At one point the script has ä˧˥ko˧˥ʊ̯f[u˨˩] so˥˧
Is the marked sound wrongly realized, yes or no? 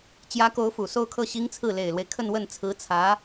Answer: no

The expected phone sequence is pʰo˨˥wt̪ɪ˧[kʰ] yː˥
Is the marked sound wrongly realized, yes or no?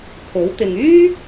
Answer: yes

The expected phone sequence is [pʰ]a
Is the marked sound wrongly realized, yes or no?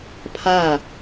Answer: no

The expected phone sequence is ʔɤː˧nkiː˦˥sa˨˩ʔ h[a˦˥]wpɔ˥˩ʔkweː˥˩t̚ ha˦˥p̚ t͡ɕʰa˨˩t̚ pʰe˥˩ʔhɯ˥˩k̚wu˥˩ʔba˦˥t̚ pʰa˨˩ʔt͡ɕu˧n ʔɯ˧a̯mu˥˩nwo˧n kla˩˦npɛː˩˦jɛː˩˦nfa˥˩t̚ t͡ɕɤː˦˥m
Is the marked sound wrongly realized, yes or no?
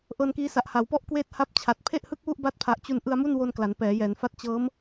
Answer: yes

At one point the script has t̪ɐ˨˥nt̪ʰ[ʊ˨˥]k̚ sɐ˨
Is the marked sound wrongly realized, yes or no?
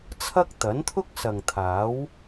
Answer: yes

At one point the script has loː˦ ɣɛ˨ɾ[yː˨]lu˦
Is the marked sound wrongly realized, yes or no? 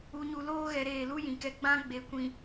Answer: yes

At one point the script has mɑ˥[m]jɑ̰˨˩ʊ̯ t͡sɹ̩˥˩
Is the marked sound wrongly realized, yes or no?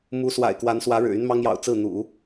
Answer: yes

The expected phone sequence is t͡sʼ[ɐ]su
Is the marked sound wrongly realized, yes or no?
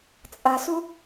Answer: no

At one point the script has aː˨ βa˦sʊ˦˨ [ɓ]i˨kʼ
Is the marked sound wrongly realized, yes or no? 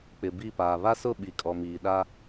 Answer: no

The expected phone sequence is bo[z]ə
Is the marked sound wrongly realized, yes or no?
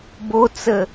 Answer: yes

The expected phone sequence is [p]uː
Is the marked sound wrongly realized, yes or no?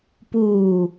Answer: no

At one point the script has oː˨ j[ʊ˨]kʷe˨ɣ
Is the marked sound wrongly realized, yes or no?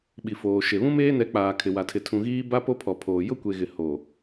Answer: yes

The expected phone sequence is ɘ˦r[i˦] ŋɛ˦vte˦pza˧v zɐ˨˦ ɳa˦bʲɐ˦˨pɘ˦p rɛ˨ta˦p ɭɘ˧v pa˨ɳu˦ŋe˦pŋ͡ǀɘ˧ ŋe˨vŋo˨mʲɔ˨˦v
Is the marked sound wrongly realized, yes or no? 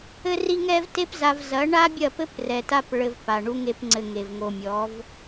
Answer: no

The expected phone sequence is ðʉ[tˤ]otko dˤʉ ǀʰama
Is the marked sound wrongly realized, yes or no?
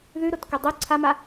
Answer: yes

